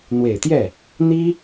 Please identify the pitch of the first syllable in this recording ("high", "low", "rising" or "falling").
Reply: low